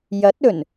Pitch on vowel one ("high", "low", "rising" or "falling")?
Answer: rising